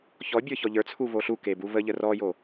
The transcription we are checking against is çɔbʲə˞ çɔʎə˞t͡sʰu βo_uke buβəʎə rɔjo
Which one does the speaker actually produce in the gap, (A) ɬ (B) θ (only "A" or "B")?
A